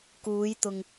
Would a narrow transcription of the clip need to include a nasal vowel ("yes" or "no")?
no